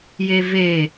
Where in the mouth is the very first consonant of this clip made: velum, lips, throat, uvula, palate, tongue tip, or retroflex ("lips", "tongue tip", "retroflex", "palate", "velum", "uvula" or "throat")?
palate